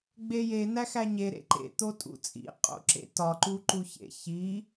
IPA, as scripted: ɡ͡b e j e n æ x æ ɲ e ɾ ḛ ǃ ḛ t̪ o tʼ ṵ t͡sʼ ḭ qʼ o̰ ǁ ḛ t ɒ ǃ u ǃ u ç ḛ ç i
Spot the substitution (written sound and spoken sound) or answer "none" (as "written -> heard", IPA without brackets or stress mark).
none